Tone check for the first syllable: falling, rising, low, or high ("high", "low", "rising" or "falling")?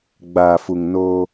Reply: low